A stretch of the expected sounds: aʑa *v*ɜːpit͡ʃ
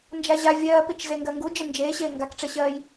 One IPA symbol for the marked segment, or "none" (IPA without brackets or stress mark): vʲ